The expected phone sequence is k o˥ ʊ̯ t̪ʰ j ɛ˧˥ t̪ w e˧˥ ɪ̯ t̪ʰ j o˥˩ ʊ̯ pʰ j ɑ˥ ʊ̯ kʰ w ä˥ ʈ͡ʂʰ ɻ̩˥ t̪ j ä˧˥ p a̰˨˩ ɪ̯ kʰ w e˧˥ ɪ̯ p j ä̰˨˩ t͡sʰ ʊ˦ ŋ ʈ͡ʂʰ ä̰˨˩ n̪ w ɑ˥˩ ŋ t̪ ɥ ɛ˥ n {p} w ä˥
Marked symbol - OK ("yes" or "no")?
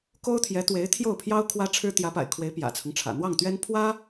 no